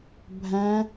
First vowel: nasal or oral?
nasal